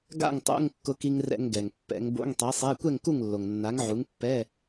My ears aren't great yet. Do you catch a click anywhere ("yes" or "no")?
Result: no